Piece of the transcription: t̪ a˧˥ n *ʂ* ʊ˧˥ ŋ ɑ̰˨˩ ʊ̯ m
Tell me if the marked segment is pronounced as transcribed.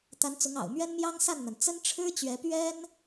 no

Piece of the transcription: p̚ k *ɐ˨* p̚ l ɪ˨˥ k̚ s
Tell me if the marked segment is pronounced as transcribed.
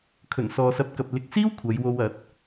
yes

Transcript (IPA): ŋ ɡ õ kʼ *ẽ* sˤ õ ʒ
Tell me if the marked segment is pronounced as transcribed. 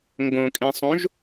yes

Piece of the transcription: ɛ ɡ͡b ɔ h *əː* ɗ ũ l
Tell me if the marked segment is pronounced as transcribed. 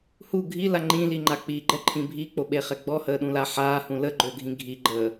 yes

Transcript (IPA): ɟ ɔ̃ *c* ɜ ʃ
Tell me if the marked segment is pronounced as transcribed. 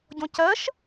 yes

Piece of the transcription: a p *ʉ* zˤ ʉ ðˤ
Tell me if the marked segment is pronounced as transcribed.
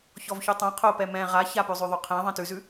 yes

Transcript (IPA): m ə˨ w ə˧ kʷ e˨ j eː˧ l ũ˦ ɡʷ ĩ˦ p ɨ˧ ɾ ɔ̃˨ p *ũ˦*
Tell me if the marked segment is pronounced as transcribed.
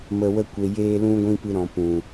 no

